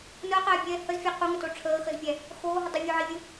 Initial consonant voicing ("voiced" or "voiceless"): voiced